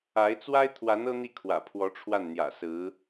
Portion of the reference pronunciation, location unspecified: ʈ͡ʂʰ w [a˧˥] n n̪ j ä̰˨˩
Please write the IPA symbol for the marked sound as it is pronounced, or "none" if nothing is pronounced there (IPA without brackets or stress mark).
a˥˩